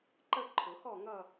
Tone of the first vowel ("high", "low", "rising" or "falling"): falling